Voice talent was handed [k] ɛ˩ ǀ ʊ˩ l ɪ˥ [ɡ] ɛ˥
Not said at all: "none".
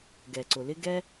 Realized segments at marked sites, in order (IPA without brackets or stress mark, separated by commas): ɡ, ɡ